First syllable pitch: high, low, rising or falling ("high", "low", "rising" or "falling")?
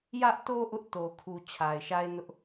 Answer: high